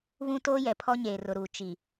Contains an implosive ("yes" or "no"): no